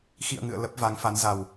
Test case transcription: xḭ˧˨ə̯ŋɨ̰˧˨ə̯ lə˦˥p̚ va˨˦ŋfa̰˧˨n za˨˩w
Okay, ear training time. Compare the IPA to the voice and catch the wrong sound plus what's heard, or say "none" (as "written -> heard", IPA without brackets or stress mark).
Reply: a̰˧˨ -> a˨˦